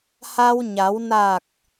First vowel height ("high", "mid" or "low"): low